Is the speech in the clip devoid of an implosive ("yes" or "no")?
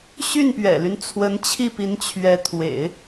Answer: yes